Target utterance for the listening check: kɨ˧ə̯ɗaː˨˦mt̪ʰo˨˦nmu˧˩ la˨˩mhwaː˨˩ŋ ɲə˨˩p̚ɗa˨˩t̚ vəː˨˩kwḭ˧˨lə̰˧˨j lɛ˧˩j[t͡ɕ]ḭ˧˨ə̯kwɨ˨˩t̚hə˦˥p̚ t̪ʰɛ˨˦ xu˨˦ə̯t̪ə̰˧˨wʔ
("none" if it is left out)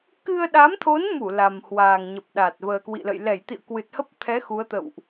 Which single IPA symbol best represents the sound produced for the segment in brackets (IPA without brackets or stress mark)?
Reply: t̪